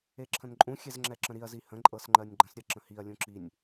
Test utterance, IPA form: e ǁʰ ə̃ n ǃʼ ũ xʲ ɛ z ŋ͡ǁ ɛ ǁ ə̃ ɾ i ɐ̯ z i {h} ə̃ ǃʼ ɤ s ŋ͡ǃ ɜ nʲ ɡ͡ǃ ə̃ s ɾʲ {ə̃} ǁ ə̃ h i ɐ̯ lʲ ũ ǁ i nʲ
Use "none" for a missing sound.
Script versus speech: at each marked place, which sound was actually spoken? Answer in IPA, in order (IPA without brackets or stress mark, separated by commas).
h, ə